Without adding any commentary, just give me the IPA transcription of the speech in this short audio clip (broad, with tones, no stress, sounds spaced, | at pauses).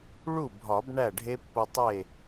ɭ u˥˩ bʱ ɒ˨˩˦ b ɳ æ˥˩ ɖʱ e˦˥ pː o˧ tˤ e˥˩